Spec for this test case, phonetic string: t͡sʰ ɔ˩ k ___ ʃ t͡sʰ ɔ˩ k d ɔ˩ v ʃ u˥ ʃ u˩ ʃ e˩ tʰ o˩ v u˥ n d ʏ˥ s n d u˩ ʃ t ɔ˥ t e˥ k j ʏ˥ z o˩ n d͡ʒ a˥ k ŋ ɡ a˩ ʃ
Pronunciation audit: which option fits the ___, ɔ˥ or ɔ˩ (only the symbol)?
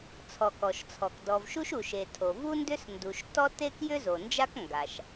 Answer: ɔ˩